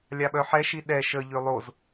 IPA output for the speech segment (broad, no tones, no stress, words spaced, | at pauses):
lʲaɓœħɛʃi ɗɛ ʃəʎø lˠoz